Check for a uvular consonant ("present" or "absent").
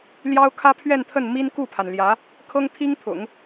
absent